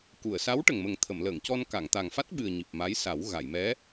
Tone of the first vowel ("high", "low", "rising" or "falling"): low